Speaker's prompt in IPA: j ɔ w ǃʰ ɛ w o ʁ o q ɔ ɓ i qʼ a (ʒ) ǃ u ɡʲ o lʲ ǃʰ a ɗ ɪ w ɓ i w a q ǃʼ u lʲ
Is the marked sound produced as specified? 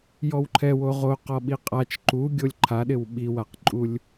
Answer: no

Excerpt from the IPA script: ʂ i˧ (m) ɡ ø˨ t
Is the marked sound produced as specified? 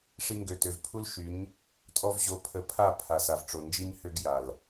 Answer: no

